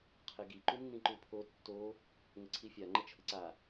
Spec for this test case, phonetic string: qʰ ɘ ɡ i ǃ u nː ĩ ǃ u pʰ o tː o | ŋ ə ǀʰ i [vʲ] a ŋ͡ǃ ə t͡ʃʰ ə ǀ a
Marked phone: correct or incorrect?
incorrect